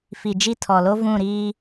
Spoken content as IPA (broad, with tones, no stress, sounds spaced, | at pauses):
f i˨ d͡ʒ i˦˨ tʰ ɔ˨ l o˦ v ũ˦˨ ɾ iː˦